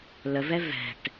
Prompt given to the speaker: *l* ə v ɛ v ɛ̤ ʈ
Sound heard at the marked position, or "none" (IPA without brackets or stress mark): l